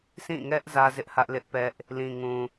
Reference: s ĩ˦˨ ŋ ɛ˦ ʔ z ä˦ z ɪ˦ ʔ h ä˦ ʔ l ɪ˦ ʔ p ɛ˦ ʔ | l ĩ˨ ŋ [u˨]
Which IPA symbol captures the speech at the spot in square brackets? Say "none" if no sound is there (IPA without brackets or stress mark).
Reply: ũ˨